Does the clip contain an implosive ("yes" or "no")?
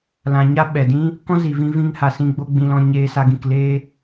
yes